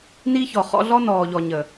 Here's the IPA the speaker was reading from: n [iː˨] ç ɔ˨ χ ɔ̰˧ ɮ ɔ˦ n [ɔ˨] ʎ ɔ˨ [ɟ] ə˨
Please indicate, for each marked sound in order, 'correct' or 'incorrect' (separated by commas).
incorrect, incorrect, incorrect